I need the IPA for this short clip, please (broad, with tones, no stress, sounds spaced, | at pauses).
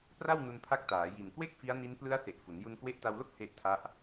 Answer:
p r a˥˩ w n u˧ n pʰ a˦˥ k̚ t aː˩˦ j i˨˩ n k w e˥˩ k̚ f i˦˥ a̯ n i˦˥ n p l ɯ˦˥ a̯ s e˨˩ ʔ f u˩˦ n j u˧ n k w e˦˥ ʔ t a˧ w l o˥˩ k̚ h e˦˥ ʔ tʰ a˦˥ ʔ